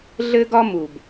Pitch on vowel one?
high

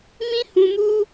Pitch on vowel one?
high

